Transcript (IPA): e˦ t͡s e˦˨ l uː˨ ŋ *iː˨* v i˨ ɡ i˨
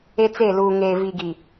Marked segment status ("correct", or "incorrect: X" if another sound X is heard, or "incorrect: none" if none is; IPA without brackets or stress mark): incorrect: eː˨